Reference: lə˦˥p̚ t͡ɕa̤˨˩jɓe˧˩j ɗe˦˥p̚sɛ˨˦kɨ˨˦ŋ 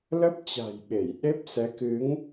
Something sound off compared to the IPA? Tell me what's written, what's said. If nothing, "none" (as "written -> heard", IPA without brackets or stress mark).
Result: none